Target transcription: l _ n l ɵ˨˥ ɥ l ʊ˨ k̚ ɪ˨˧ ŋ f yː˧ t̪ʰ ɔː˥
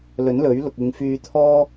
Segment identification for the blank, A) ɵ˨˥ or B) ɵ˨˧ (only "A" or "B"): A